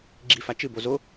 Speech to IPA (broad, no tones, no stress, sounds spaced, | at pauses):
ɡ͡ǁ i f a t͡ʃ ɨ b o z o